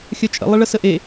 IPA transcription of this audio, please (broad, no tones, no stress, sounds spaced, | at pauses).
xʲ œ t͡ʃʼ ə̰ lˠ ə ɭ ə s ə ʔ e